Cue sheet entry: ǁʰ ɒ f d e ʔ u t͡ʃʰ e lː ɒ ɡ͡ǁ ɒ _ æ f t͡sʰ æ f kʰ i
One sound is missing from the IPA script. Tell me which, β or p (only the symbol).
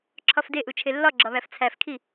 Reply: β